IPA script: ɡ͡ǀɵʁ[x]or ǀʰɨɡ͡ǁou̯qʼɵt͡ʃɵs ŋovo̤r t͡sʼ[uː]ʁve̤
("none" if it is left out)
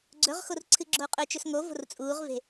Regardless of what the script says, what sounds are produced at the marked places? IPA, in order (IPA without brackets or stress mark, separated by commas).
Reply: x, uː